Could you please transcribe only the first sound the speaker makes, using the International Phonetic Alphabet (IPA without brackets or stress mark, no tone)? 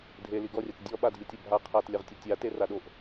dʱ